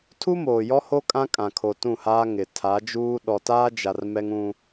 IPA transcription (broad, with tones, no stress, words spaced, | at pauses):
tʰu˦moː˨jɔ˦ho˦ kʼã˦kʼã˨ kʰo˨ tũ˦˨haː˦ ŋɪ˨ tʰa˨˦d͡ʒuː˦ ɗɔ˨taː˦d͡ʒa˨r mɛ˦ŋũ˦